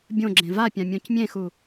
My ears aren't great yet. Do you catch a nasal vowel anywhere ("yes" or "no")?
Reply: yes